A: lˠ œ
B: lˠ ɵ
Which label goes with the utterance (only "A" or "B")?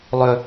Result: B